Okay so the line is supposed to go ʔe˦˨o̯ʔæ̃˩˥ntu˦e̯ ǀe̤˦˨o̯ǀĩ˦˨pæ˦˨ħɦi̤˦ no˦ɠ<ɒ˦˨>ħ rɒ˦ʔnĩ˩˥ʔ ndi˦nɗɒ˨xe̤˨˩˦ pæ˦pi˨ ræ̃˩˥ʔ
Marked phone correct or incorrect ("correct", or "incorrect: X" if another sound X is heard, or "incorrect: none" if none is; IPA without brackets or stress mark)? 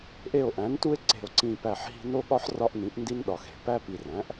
incorrect: ɒ˦